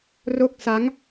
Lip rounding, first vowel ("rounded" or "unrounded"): rounded